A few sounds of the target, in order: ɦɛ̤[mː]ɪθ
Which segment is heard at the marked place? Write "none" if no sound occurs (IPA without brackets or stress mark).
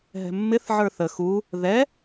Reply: mː